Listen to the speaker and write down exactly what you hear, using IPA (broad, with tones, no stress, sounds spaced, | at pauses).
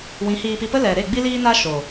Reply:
w ĩ˨˦ h iː˧ p i˧ p ə˦ l ɛ˨ ɾ e˦˨ ɡ͡b i˦ l iː˦ n a˦ ʃ oː˨